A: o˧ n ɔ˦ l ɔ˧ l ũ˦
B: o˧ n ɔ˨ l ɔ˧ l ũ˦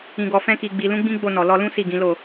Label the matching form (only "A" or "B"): B